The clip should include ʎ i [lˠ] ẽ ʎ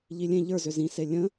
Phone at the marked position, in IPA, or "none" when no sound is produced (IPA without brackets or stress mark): lʲ